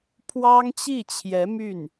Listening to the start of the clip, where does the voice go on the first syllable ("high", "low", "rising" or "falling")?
high